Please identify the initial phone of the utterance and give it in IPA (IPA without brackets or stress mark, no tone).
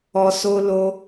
ɔ